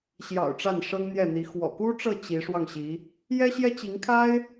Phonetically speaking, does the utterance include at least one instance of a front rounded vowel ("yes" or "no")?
no